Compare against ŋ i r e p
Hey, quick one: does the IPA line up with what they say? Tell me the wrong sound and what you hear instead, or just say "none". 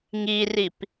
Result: e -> i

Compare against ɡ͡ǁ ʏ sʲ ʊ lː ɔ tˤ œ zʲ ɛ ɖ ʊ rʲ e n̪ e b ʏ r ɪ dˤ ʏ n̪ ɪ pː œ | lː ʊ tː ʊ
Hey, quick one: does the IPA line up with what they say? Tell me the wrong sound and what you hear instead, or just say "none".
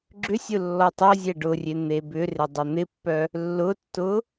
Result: none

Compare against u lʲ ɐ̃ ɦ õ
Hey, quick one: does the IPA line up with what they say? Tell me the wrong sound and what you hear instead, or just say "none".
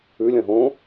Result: u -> ʉ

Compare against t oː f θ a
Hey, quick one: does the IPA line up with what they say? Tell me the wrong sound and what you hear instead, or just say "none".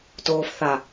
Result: none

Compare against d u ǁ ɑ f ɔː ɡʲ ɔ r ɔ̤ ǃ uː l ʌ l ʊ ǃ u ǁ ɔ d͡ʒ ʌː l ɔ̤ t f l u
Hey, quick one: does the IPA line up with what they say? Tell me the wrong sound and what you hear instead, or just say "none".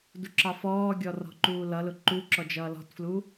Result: none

